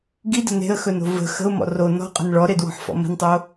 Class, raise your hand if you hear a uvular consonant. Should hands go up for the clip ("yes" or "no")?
yes